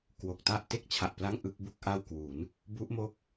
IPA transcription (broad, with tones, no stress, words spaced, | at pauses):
kwo˨˩k̚ta˥˩ʔ te˥˩k̚t͡ɕʰa˨˩ʔpla˥˩ŋ ʔɯ˥˩k̚ bu˥˩k̚ʔa˥˩wkwu˩˦n | bu˦˥ʔmo˦˥k̚